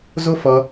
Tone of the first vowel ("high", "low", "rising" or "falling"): high